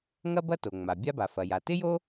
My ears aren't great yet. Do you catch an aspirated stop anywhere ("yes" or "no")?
no